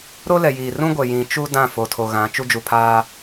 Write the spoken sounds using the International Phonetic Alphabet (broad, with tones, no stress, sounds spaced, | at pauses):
ɾ o˦ l ɛ˨ j iː˨ r ũ˦ ɡʷ ɛ˨ j ĩ˨ t͡ʃ u˦ d ã˦˨ f o˨ tʰ o˨ ɣ ã˨˦ t͡ʃ u˦ d͡ʒ u˨ pʰ aː˦